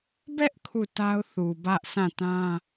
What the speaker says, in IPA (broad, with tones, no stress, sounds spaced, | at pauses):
b ɛ˦ ʔ kʰ u˦˨ t a˦ ʊ̯ θ u˨ b ä˦ ʔ s ã˦˨ t ã˦